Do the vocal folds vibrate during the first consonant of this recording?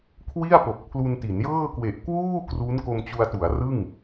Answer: no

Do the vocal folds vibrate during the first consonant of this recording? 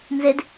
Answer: yes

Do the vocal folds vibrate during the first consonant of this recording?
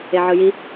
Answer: yes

